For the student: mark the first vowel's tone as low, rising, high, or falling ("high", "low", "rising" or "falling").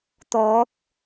rising